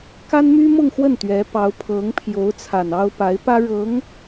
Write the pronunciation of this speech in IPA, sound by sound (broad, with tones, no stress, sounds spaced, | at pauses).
k a˥ n m y˥ m ʊ˥˧ ŋ x w ə˥˩ n t̪ ɥ ɛ˧˥ p ɑ˧˥ ʊ̯ pʰ ɤ˧˥ ŋ pʰ j o˧˥ ʊ̯ t͡sʰ a˨˩ n ɑ˥ ʊ̯ p a˧˥ ɪ̯ p ä˥ ɻ ɤ˧˥ ŋ